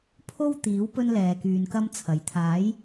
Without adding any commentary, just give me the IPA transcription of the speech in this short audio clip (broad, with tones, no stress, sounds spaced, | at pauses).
pʰ o˥ w t̪ iː˨˥ w p ɵ˥ n l ɛː˨ k yː˨ n k ɐ˥ m t͡sʰ ɐ˨ j t̪ʰ aː˨˥ j